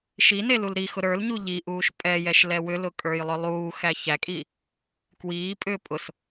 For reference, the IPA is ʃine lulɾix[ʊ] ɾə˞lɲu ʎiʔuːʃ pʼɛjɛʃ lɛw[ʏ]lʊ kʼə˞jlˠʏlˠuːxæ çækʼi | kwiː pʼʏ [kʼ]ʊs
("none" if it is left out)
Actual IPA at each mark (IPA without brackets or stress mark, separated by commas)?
ʊ, ʏ, pʼ